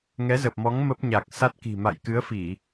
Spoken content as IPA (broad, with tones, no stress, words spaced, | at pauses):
ŋɛ˨˦zə˨˩p̚mɔ˨˦ŋ mə˦˥p̚ɲa˨˩k̚sa˦˥t̚ ki̤˨˩ma̰˧˨j kɨ˨˦ə̯fi˧˩˨